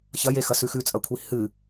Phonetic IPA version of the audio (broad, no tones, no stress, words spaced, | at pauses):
çɐjexɐsʉ xʉt͡sʼɐkʷʰi hɨ